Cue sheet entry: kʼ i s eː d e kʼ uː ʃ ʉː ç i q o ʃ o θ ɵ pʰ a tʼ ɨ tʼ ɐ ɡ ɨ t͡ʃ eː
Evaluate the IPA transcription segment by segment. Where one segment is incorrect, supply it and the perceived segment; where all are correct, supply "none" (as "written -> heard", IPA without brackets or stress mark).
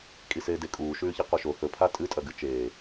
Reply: none